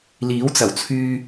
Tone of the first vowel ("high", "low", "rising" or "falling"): rising